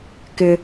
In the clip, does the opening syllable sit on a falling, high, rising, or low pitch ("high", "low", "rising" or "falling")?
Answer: high